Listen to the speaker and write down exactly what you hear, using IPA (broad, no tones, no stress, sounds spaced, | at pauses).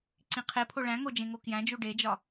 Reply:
ǀ ĩ qʰ e pʰ o ɭ æ̃ ŋ o d͡ʒ ẽ ŋ o k j æ̃ d͡ʒ u ɖ e d͡ʒ ɒ